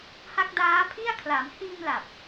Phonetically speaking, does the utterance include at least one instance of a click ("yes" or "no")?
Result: no